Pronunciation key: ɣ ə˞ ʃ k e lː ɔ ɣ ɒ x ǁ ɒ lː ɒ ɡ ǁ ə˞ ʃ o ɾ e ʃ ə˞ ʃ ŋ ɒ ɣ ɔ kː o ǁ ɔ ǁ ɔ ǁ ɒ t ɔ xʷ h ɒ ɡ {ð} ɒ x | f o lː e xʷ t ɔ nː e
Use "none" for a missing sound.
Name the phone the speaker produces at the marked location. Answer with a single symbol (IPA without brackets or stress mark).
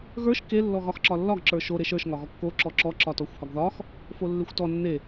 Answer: ð